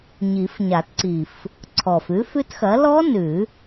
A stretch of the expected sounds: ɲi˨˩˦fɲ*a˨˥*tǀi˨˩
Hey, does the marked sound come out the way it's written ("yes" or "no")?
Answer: no